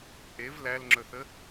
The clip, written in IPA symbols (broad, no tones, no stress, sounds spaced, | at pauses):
ʔ e v l æ l ŋ͡ǁ ɵ θ ə